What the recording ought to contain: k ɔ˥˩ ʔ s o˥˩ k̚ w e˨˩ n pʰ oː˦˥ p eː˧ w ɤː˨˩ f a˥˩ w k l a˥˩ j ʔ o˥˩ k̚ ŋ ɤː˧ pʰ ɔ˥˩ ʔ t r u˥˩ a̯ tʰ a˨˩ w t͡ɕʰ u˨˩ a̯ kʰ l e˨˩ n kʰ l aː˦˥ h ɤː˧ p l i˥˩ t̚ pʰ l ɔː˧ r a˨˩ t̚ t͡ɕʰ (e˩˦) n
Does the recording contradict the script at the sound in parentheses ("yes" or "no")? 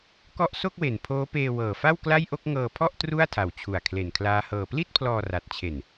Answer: yes